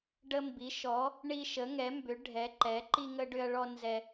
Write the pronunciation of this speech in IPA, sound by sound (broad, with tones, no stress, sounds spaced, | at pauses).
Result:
ɖ ə˦ m b i˩˥ ʃ ɔ˩˥ | ɳ i˦ ʃ ə˩˥ ŋ ɛ˩˥ m b ʏ˩˥ ɖʱ ɛ˩˥ ǃ ɛ˩˥ ǃ i˦ ŋ ə˦ ɖ ʏ˦ ɐ̯ ɭ ɔ˦ n z ɛ˦